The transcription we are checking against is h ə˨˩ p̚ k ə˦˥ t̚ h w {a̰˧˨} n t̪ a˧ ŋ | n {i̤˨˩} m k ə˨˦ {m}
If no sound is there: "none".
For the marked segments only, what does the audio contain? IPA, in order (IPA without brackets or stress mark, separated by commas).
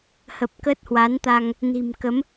a˨˦, i̤˨˩, m